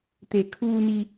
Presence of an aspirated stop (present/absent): present